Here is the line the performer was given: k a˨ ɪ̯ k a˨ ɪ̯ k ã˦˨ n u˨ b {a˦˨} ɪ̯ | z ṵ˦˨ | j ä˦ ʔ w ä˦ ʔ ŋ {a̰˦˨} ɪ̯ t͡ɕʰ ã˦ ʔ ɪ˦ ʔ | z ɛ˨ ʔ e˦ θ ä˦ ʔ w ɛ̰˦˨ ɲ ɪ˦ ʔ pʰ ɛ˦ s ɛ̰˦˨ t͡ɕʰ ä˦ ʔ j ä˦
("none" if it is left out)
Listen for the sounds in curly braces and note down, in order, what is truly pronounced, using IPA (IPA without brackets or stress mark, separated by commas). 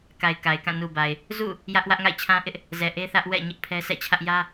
a˨, a̰˦˨